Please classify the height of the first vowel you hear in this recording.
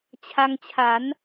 low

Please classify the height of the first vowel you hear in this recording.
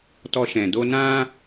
mid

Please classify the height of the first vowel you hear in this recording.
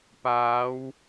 low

